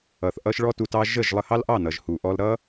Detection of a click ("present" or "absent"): absent